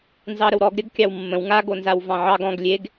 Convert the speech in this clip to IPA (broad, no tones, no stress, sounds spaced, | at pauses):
n z ɑ ɾ ə w ɾ ɔ ɡ ɾʲ ɐ ɡ kʲ ɑ w mː ə̃ w ŋ a ɡ o n z a w v ɑ̃ ʕ ɑ ɡ ɔ̃ ɡ lʲ e ɡ